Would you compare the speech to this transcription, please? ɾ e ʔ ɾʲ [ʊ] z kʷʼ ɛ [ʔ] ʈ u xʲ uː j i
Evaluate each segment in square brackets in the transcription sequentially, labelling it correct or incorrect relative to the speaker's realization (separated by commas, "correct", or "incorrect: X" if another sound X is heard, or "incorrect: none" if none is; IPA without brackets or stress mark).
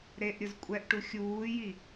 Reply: correct, correct